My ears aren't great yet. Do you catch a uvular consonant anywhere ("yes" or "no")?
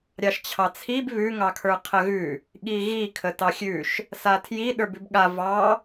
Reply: yes